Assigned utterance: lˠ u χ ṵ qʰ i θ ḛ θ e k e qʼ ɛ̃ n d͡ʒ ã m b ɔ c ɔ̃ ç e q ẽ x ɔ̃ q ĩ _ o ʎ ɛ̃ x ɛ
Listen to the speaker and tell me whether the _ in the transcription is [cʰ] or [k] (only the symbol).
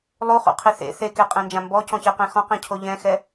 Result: cʰ